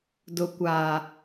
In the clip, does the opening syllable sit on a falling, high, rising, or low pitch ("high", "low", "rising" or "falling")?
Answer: low